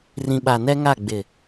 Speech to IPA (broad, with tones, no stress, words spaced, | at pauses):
rĩ˨ɓa˨nɛ˦ŋa˦˨ ɡ͡bɪ˨